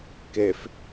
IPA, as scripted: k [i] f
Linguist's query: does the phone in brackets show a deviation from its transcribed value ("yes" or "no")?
yes